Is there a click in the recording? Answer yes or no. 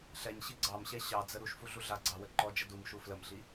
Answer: yes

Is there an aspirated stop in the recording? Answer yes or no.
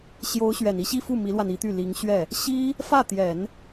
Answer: no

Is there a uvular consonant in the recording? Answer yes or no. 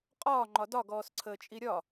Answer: yes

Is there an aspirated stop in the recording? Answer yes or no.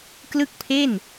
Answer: yes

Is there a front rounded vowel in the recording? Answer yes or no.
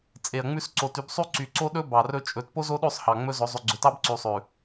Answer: yes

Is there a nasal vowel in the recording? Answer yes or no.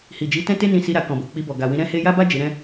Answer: yes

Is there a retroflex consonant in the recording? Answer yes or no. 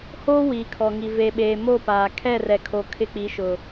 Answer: no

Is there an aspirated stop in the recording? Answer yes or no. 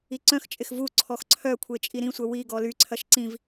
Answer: yes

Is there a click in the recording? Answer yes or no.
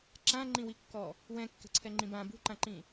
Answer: yes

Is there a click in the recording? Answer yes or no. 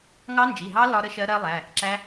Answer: yes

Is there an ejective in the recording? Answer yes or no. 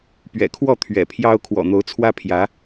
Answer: no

